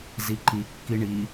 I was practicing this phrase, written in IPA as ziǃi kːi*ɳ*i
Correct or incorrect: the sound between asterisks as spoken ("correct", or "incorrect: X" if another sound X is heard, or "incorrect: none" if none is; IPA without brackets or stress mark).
correct